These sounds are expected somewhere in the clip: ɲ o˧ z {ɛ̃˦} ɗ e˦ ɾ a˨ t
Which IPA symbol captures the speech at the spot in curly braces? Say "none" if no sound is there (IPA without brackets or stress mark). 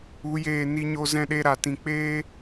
ɛ̃˦